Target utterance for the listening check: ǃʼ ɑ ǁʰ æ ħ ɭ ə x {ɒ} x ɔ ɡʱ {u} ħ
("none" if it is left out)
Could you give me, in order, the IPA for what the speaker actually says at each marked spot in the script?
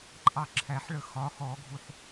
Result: ɒ, u

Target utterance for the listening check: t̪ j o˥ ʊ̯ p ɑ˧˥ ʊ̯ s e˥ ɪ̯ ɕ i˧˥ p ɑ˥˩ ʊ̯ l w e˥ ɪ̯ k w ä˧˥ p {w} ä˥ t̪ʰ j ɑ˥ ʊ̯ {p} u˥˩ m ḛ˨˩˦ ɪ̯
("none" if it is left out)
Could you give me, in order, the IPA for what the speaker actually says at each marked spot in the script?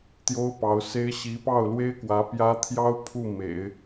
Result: j, pʰ

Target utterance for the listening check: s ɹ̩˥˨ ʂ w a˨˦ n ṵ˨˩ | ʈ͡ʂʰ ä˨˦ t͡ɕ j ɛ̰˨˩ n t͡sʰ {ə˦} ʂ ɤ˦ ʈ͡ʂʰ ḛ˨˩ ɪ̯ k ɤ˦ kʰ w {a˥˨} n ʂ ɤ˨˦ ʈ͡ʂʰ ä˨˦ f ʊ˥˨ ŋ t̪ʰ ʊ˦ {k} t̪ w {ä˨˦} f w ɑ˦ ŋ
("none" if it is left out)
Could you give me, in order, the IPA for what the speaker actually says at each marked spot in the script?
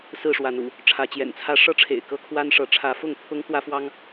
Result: ä˦, a˦, ŋ, ä˦

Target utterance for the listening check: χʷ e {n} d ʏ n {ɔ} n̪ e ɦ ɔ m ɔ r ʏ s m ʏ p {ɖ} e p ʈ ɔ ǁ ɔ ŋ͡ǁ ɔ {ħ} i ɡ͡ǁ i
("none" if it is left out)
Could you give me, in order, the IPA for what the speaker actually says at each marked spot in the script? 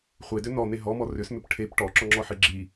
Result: none, ɔ, ʈʰ, ħ

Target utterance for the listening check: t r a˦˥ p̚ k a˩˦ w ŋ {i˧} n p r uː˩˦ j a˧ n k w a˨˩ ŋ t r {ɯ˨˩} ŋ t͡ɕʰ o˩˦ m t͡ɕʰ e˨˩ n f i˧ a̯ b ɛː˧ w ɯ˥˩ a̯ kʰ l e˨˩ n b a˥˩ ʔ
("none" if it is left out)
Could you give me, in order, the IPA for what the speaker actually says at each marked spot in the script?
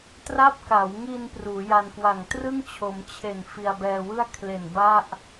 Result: i˧, ɯ˥˩

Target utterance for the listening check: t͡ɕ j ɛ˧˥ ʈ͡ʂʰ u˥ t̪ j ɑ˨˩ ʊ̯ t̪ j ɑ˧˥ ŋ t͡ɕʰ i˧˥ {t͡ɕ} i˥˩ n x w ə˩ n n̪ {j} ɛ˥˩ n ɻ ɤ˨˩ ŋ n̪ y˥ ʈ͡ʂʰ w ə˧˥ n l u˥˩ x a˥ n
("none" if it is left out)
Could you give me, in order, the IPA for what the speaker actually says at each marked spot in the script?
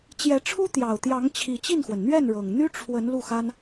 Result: t͡ɕ, ɥ

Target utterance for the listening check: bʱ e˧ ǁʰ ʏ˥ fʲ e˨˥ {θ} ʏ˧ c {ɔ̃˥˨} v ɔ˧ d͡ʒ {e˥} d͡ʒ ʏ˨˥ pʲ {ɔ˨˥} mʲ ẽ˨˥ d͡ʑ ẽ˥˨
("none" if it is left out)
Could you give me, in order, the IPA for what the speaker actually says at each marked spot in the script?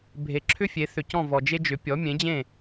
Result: θ, ɔ̃˥˨, e˥, ɔ˨˥

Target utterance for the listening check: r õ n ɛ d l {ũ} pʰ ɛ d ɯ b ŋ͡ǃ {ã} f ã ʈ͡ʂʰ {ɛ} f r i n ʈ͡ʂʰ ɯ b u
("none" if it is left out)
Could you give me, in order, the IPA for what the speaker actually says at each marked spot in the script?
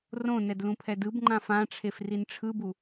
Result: ũ, ã, e

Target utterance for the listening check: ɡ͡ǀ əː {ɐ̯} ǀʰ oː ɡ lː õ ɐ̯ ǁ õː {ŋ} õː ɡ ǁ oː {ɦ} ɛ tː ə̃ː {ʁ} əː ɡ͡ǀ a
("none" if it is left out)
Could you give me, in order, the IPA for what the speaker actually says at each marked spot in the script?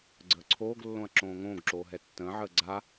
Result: none, ŋ, ɦ, ʕ

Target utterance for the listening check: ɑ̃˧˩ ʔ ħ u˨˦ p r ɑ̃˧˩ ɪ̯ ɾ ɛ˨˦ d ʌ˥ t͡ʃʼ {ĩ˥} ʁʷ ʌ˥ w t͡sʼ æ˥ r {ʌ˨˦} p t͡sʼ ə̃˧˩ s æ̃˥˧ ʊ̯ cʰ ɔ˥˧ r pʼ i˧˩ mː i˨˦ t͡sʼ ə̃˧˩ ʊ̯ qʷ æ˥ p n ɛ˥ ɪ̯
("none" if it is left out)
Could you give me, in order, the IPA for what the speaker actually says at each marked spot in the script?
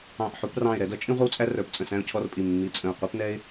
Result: ĩ˥, ə˞˨˦

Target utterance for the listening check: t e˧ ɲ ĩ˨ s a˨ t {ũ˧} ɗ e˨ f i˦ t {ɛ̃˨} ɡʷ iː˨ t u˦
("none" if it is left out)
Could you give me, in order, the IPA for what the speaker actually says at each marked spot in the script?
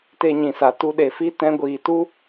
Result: u˧, ɛ̃˧

